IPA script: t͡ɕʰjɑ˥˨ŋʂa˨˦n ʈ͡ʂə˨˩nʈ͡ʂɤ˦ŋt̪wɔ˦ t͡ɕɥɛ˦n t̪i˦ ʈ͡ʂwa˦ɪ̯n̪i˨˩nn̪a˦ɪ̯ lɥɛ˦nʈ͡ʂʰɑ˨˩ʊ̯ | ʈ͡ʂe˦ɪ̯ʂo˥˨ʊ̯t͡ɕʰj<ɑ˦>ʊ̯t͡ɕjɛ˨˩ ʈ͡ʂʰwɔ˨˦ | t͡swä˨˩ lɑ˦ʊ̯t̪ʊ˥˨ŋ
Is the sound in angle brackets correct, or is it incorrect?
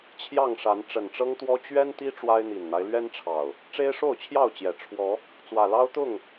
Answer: incorrect